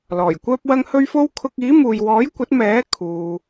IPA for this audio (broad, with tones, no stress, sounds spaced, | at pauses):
l ɔː˨˩ j kʷ œː˥ p̚ w ɐ˥ ŋ h ɵ˥ ɥ f o˥ w kʰ ʊ˧ k̚ iː˨˥ m uː˨ j w ɔː˨˥ j kʷ ɐ˨˥ t̚ m ɛː˨˥ kʰ uː˧